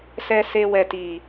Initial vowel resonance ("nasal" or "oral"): oral